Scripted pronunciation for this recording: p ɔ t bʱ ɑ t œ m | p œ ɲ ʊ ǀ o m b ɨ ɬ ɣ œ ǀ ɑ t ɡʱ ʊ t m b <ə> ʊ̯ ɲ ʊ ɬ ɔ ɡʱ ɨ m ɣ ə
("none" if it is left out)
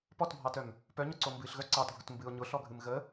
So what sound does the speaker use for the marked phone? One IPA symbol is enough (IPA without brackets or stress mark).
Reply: ɨ